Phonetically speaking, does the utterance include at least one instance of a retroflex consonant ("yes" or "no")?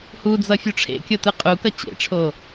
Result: yes